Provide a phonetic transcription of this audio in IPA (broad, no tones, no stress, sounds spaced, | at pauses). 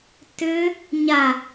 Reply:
t ʏ | ɲ a